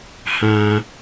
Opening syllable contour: low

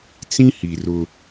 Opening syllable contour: high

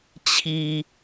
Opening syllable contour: low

